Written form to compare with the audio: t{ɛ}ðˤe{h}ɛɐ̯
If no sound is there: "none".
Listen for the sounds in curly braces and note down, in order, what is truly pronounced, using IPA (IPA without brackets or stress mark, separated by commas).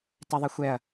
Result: ɛ, xʷ